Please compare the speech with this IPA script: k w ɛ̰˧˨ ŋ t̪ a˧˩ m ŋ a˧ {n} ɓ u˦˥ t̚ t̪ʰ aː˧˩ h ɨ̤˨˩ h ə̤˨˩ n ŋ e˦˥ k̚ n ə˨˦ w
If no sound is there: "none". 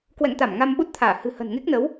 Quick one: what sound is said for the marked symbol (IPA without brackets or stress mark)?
m